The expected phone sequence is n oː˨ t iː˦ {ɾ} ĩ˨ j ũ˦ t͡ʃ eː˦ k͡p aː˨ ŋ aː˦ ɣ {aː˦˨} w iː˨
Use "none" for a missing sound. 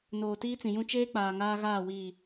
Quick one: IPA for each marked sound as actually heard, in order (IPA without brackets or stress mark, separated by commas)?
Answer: t͡s, aː˦˨